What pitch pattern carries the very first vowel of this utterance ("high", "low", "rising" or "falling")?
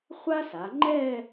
high